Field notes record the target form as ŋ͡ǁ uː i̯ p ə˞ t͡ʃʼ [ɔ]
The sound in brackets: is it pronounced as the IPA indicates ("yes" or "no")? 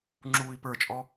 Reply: yes